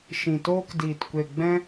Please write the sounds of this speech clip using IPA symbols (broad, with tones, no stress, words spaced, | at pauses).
ʃĩ˨toː˦kdiː˨t kʷe˨ɡ͡bɛ̃˦